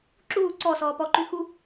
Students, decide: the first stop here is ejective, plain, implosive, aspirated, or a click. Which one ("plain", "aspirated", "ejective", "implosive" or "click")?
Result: click